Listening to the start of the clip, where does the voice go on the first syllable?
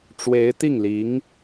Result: rising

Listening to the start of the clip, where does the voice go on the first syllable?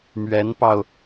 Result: rising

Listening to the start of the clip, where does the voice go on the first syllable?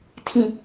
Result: high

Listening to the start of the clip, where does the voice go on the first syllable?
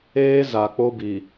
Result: high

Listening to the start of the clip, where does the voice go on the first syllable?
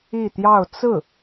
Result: falling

